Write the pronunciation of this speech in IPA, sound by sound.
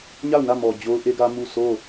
ɲa˦˨ʊ̯nä˦˨mɔ˨ d͡ʑo˦ʊ̯ʔe˦ɡä˦ mu˦˨ sʰo˦˨

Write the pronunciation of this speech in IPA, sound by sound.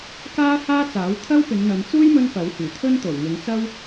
kaː˥haː˥t͡saː˨˥w t̪ʰɐ˥wpɪ˨˧ŋn̪ɐ˨˧nt͡suː˥j mɵ˥npɐ˨˥whyː˨˩ t̪ʰɵ˥nt̪o˨˩wŋɪ˨˧ŋ t͡sɐ˥w

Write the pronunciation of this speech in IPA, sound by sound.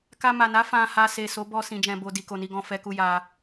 ka˧ma˨na˨˦ fã˧ha˧ se˨so˨˦ bɔ˧ sĩ˧d͡ʒɛ̃˧bo˧ di˨ko˨ni˧ɡɔ̃˨ fɛ˧ku˧ja˧

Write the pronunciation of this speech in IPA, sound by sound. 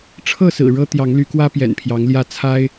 ʈ͡ʂʰɤ˥˨sɹ̩˨˩ ɻɤ˦ t̪jɑ˨˦ŋly˨˦kwä˦ pjɛ̰˨˩npʰjɑ˨˦ŋljä˥˨ t͡sʰa˦ɪ̯

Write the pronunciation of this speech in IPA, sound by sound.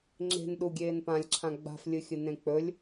ŋ͡ǁe̤n ɗuɡʲeːn pãlʲǁʰã ɡ͡ba̤flʲɨxʲɨ nẽk͡pɵlʲ

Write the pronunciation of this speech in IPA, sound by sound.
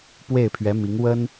pwe˥˩ɪ̯pʰɥɛ˧˥mi˧˥ŋ wə˥n

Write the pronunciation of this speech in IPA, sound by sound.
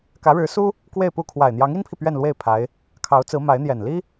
kä˧˥ɻɻ̩˧˥su˥ | kwe˥˧ɪ̯pu˥˩ kʰwa˨˩ɪ̯ n̪jɑ˧˥ŋi˥npʰi˨ pɥɛ˥˧nlwe˥˩ɪ̯ pʰa˧˥ɪ̯ | kʰɑ˧˥ʊ̯t͡sɹ̩˧˥ma˧˥ɪ̯n̪jɛ˨˩n li˥

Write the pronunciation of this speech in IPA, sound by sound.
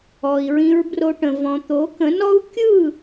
ɔ˨i̯ɹĩ˧ɹbro˧ʈə̃˨ vɔ̃˨t̪o˨˦kə̃˨˦nɔ˦u̯ kʲɯ˦˨

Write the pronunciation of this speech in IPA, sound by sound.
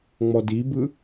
ŋ͡mɔdibɯ

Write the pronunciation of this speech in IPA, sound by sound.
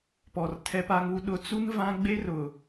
pɔ˨r tʰɛ˦pa˦ŋu˦ ɗʊ˨˦t͡su˦n vã˦ɡ͡be˦rʊ˨

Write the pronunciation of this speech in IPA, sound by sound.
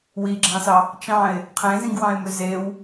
wiɡ͡ǁɑ̃sɑ | t͡ʃɑ̃ɪ̯ | qʰẽzĩɡwɑ̃ɪ̯mø zew

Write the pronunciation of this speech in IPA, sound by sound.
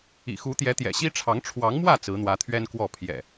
ḭ˨˩xu˨˦t̪jɛ˨˦ t̪jɛ̰˨˩ɕi˦ʈ͡ʂʰɑ˨˦ŋ ʈ͡ʂʰwɑ˨˦ŋmwä˥˨ t͡sɹ̩˨˦n̪wä˨˦t̪ʰɥɛ˦nkwɔ˥˨ pʰjɛ̰˨˩

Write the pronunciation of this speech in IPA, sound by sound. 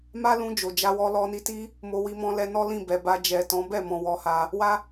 ma˦lũ˧ d͡ʒo˨d͡ʒa˧ wɔ˧ lɔ˧ni˧ ti˦ | mo˧wi˧mɔ̃˧lɛ˧ nɔ˦lĩ˦˨bɛ˨ba˧ d͡ʒɛ˨tɔ̃˨˦ bɛ˦˨mɔ̃˨ wɔ˧ha˧ | wa˦

